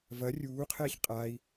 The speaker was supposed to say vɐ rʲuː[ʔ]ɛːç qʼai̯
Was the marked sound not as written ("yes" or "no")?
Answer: yes